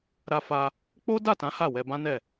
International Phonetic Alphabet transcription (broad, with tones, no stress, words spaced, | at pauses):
ɾa˧ fa˧ | k͡po˦da˦˨tã˨˦ ha˦˨wɛ˧bã˦nɛ˦˨